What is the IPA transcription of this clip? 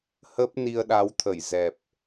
hə˦˥p̚ni˧ə̯ɗa˨˦wt̪ʰə˧˩j zɛ˨˩p̚

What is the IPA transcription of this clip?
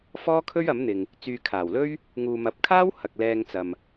fɔː˥kʰɵ˥ɥɐ˨˥mn̪ɪ˨ŋ | t͡syː˨kʰaː˨˩wlɵ˥ɥ | ŋuː˨mɐ˨˥p̚kʰaː˥w hɐ˨k̚lɛː˧ŋt͡sɐ˨m

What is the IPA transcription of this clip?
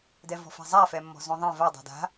dɛvɔ̤fa̤zˤa fɛmːɔ̤zõðˤɛ̃ va dˤa̤da̤

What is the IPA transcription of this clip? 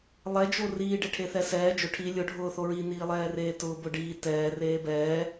lˠɛd͡ʒo riːɖe ʈʰeθɛsɛː d͡ʒʊ ʈʰi lʲʊ ɖʱʊːθoɹi niːlˠɛːreːtʊː bʊ ɖiː tɛː reːbɛː

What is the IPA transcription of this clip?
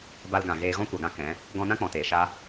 ba˧lɡã˨ ɣeː˧ɣɔ̃˦ kʷa˨ɡã˦ kɛ̃˨˦ | ɡɔ̃˧nã˦ k͡pɔ̃˨teː˨ʃa˦

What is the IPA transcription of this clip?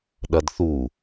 ɗɐdθu

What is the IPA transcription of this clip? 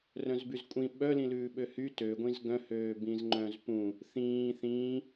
rœ̃zbyzkʷʼĩ ɓœ lĩlʉːɓøhy tø ɡʷĩzɡœ̃ høːbĩzŋ͡ǃœ̃zpũ | θĩː θĩː

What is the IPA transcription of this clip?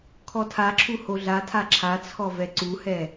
kʰɔtʰaǁʰu hoɮatʰa ǁʰat͡sʰɔ vɛǀuhɛ

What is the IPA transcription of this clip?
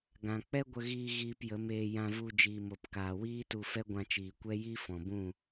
ɡã˨k͡pɛ˦ɡʷə˧ɣiː˧ ɣiː˧pjə˨˦meː˧ jã˧vu˧ d͡ʒiː˨mo˨pkaː˨ wiː˦tu˧fɛ˦ ɡʷã˧t͡ʃiː˨kʷɛ˦ ji˦fɔ̃˨bũ˦˨

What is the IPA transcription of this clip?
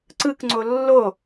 ǀɯkŋ͡ǀo lːo

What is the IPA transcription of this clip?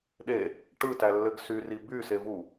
ɗe | ʈɯtælːɘɡ syri bysevu

